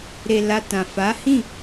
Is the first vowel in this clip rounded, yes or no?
no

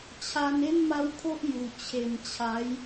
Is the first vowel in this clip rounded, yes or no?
no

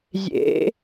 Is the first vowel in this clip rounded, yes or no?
no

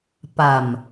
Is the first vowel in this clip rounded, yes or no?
no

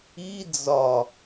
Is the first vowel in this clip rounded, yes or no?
no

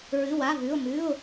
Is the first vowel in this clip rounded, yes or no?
no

